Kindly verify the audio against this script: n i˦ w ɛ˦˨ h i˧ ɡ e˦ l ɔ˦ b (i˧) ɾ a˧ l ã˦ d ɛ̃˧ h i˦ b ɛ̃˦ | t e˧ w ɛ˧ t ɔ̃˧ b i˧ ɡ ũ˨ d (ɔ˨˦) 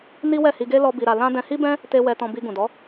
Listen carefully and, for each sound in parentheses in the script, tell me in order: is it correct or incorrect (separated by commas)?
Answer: correct, correct